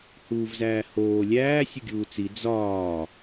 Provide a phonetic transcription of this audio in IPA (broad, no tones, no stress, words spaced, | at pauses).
huːvzæːhoː lʲæː sʲoɡʲuːt͡si d͡zɒː